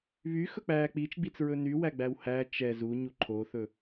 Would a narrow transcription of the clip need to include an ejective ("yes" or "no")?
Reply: no